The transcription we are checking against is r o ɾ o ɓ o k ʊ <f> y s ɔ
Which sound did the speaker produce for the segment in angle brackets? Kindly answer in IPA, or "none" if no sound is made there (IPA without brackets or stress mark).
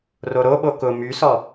m